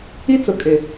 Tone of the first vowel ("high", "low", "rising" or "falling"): high